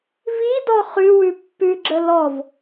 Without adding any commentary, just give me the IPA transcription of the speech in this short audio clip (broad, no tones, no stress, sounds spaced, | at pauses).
v i d ɔ χ ʉ w ʉ pː ʉ ɡ͡ǁ ə l ɔ v